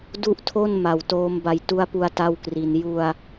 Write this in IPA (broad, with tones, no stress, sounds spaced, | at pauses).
d u˥˩ ʔ tʰ o˥˩ n m a˨˩ w t oː˦˥ m b a˧ j t u˧ a̯ p u˧ a̯ t a˥˩ w k r i˧ n j u˧ a̯